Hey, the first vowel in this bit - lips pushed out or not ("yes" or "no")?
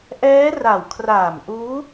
no